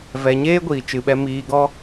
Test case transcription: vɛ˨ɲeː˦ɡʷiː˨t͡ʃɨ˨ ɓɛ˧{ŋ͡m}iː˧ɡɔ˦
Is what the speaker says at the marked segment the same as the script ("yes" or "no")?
no